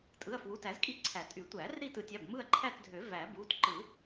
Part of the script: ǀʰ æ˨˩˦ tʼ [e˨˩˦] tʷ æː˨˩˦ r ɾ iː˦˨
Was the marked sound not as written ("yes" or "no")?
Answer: yes